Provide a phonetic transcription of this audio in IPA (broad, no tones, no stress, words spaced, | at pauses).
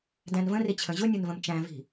dæ̃nvə̃rit͡ɕʰə̃ ʑʊnʲʊnvə̃m t͡ʃæ̃vi̤